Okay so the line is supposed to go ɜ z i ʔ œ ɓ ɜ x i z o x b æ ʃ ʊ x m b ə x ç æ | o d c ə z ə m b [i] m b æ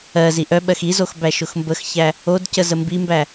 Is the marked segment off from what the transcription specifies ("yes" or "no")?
no